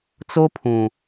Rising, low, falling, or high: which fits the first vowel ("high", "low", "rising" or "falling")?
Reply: high